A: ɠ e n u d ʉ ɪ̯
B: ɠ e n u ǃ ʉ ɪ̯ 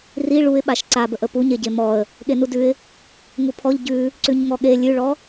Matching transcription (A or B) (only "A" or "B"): A